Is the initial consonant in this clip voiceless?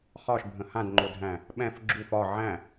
yes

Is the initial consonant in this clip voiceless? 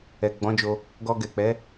no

